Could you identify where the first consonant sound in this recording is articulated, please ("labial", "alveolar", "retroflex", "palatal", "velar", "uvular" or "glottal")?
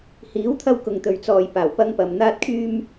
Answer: glottal